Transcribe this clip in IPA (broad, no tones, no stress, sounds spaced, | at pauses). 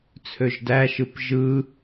t͡sʰ ø ʒ d æ ʃ ɯ p ʒ ɯ